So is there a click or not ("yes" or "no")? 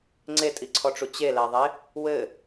yes